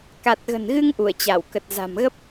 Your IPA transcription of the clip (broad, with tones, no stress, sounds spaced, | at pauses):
k a˨˩ t̚ ɣ ə̤˨˩ n ɣ ɨ˧ ŋ ʔ u˧˩ ə̯ t͡ɕ a˧˩ w k ə˨˩ t̚ z a̤˨˩ m ɣ ə˦˥ p̚